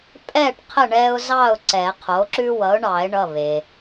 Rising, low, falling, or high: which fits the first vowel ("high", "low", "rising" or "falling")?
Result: falling